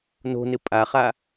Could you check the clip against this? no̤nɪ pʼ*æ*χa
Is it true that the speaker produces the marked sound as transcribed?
no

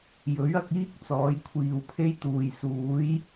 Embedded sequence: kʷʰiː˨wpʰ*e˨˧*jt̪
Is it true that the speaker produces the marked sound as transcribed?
no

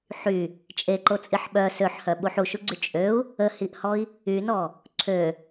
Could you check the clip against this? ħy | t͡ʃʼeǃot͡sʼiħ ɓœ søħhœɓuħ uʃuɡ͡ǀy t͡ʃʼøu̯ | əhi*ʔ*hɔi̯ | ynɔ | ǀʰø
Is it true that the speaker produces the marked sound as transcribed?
yes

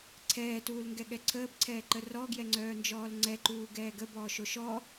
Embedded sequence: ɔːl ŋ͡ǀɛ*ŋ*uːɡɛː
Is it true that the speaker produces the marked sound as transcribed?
no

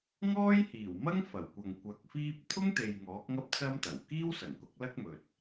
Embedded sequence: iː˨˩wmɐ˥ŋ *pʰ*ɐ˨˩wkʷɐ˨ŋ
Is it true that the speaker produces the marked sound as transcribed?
no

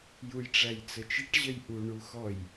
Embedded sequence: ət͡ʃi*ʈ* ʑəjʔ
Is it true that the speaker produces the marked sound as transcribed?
yes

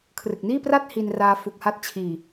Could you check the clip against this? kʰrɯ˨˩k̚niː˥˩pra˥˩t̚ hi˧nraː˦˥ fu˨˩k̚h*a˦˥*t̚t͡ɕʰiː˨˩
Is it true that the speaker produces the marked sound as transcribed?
yes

